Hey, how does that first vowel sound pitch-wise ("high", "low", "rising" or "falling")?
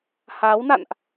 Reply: rising